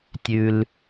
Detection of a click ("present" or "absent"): absent